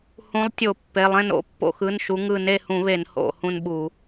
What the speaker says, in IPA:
h ũ˨˦ lˠ tʲ o˧˩˧ pː e˩˧˩ lˠ ẽ˦˨ n o̰˨˦ pː o̰˦˨ x ɯ˩˧˩ n ʃ u˨˦ ŋ ɯ˦˨ n e˦˨ h ũ˧˩˧ β e˧˩˧ n h o̰˧˩˧ h ũ˦˨ n ɓ u˧˩˧

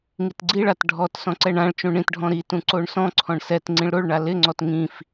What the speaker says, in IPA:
ŋ i t ɡ͡ǀ i ɭ a t ɖʱ ɔ t s ɔ̃ ǀ ɛ ɳ ã ɭ t͡ʃ ũ ɳ ĩ t ɖʱ ɔ̃ ɾ i t ũ ǀ o ɳ s ɔ̃ ǀʰ ɔ̃ ɳ s ɛ t ŋ͡ǀ ĩ ɭ ɾ o ɭ ɳ a l ɪ ŋ͡ǀ ɔ t ŋ ĩ f

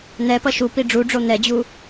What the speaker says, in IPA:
n̪ ɛ p ʌ ʃ u p i ɖ͡ʐ u ɖ͡ʐ o n̪ ɛ d͡ʑ u

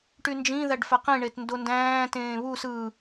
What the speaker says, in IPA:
ʈ y n d͡ʒ ĩ ð æ ɖ f æ q ĩ ɳ e t n d o n d æ̃ː t ẽː β u s ɯ

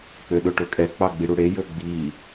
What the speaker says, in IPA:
k͡p ø ɗ ɵ ʈ ɵ kʼ ɛ k͡p ɑ ɡ͡b i ɽ u ɽ e j ɵ ɡ͡b i

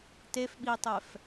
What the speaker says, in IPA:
t e f ɓ i tˤ ɛ f

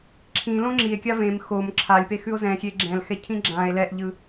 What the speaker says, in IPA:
ǁʰ ĩ l õ ŋ͡ǁ i e̯ kʲ a v ẽ m x o m ǁʰ a lʲ p e x ʉ o̯ z ɛ̃ xʲ e ɡ͡ǁ ɛ̃ l x ɛ cʰ ĩ ɡ͡ǁ ã e̯ l ɛ ʔ ʎ ɯ

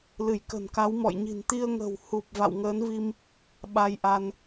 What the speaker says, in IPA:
l ɨ˧˩ j k ə̤˨˩ n k a˨˦ w m ɔ̰˧˨ j ɲ i̤˨˩ n t̪ i˧ ə̯ ŋ ə̤˨˩ w h u˨˩ p̚ v a̰˧˨ w ŋ əː˨˦ n v i˧ m | ɓ a˧ j ʔ a˧ n

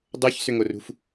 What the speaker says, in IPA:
dˤ o ç s ʏ ŋ o r ṳ f

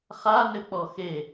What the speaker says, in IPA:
χ a n ɘ k͡p ɔ x e

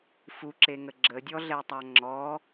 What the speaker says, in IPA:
f u ǁ e ŋ ə ɡ͡ǁ ə dʲ ɔ ɮ ɛ tˤ a ŋ͡ǁ ɔ

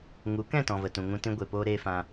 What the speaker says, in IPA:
ŋ u˨˦ k ɛ̃˦˨ t ɔ̃˨ v ə˨ t ũ˨ ŋ ũ˧ t ĩ˧ ɡʷ e˨ p oː˧ ɾ eː˧ f ã˧

